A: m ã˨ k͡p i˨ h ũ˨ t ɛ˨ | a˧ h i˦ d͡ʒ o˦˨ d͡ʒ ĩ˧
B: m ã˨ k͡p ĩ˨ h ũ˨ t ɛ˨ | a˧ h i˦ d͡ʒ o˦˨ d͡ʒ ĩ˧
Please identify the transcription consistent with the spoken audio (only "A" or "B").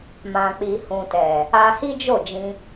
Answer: A